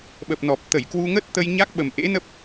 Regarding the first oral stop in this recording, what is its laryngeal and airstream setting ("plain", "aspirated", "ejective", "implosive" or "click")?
implosive